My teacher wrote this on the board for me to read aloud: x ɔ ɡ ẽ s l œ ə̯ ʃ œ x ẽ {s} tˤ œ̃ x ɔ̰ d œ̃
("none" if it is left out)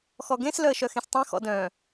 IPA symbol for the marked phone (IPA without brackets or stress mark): s